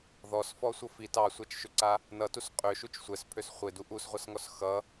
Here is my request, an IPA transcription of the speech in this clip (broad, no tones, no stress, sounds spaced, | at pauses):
ð ɔ s f ɔ sʷ ʌ f i t ɑ sʷ a t͡ʃ ʃ ʏ ǀ a | n ʌ t u s qʼ ø ʃ u t͡ʃ sʷ ɛ s pʰ ø s χʷ e d u ʔ u s ʁʷ ʌ s ŋ ɔ s x ʌ